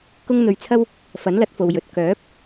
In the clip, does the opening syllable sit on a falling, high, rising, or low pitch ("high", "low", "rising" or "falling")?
high